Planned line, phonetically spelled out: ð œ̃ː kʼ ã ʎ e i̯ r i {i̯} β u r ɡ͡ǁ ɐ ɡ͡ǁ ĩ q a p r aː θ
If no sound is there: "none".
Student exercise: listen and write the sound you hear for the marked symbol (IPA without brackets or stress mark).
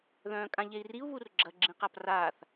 u̯